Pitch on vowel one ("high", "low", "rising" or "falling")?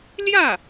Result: falling